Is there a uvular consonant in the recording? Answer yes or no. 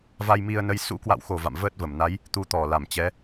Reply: no